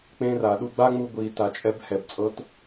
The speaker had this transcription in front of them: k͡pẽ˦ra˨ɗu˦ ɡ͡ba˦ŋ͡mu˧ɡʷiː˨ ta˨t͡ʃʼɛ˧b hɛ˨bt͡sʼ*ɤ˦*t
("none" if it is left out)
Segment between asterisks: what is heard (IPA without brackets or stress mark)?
ɤ˦